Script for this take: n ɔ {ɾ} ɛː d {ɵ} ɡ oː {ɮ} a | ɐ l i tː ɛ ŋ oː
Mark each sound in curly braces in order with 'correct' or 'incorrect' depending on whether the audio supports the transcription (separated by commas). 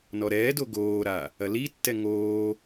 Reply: correct, incorrect, incorrect